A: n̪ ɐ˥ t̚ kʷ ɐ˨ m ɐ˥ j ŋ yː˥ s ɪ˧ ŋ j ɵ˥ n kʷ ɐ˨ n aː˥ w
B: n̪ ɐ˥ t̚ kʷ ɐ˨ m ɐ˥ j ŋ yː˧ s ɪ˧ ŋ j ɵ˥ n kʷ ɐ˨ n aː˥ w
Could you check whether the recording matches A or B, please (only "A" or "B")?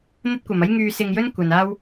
B